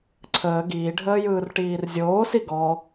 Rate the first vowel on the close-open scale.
mid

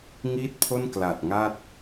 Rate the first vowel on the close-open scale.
close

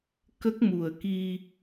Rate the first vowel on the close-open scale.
mid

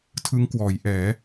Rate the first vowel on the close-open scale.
close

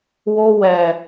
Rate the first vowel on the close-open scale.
mid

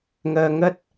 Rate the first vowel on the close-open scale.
mid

